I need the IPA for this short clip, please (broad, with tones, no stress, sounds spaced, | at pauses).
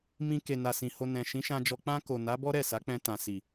m ĩ˧ k e˨ n a˨ s ĩ˨ h o˨ n ɛ̃˨ ʃ ĩ˨˦ ʃ ã˧ d͡ʒ ɔ˧ k͡p ã˧ k o˨ n a˨˦ b ɔ˦ ɾ ɛ˦˨ s a˨˦ k͡p ɛ̃˧ t ã˨ s i˨